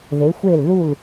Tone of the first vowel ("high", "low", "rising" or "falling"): rising